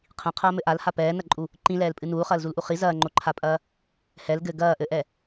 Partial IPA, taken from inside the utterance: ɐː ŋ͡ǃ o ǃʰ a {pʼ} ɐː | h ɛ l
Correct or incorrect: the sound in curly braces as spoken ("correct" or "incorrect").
correct